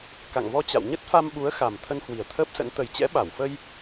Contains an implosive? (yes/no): yes